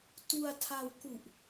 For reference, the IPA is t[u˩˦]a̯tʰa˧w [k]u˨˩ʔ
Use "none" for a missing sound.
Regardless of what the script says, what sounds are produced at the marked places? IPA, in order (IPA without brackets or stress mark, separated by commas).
u˧, k